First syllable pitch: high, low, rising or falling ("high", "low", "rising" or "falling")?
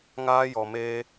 high